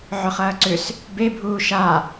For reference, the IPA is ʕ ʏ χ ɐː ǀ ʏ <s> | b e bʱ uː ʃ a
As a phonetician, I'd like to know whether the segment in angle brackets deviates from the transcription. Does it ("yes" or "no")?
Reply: no